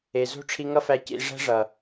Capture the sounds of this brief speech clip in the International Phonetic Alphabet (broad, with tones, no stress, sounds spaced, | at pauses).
e˨ z o̤˦ ʈ͡ʂʰ i˧ ŋ ʌ˦ f æ˧ c ḭ˧ ʐ æ̤˦ ʐ ʌ˨